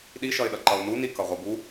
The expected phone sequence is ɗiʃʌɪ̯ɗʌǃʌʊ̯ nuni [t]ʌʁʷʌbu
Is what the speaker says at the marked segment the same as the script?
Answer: no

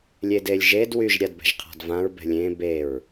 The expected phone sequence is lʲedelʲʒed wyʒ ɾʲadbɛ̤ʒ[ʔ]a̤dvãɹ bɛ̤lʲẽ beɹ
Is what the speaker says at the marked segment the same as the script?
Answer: no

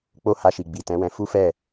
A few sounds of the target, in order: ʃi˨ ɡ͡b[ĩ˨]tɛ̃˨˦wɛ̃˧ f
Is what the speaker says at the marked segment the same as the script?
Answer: no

